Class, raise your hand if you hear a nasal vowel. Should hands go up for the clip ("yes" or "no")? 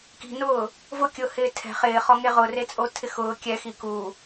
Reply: no